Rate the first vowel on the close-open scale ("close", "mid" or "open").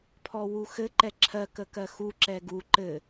mid